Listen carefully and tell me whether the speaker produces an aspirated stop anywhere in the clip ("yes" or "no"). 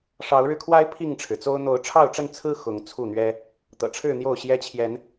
yes